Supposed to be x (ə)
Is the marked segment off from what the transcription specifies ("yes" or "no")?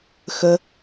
no